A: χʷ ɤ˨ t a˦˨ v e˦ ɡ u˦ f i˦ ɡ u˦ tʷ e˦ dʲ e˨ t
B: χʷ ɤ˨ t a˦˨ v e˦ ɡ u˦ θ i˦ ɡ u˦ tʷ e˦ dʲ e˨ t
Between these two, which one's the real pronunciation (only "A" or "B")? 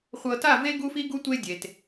A